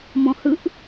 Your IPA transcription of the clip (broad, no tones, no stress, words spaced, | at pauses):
mɔ̃hɯʔ